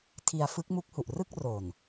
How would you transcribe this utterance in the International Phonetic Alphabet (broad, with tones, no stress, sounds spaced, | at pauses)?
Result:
tʰ i˧ a̯ f ɯ˦˥ k̚ m u˦˥ k̚ h u˨˩ ʔ r ɯ˥˩ k̚ r o˨˩ n